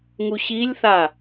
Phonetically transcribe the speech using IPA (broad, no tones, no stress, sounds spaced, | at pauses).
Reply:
ŋ u ɕ i lʲ θ a